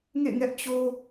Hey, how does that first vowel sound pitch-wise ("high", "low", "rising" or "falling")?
falling